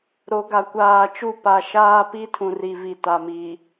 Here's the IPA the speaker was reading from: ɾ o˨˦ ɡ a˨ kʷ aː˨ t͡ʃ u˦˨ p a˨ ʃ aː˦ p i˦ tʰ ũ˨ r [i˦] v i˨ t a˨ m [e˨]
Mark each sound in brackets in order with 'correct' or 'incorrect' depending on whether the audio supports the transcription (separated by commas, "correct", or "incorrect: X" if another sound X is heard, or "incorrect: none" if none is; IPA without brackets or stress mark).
incorrect: i˨, incorrect: i˨